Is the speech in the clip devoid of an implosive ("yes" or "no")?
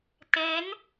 yes